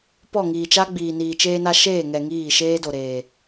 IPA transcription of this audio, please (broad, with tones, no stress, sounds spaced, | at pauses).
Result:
p ɔ˦˨ ŋ iː˨ t͡ʃ a˦ ɡ͡b iː˨ n iː˨ t͡ʃ eː˧ n a˧ ʃ eː˦˨ ŋ ɛ˨ ŋ iː˦˨ ʃ eː˦ d o˨ ɾ eː˨